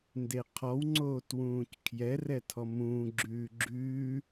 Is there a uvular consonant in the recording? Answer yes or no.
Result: yes